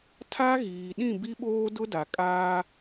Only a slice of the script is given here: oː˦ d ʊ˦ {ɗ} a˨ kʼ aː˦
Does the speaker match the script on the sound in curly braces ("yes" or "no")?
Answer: no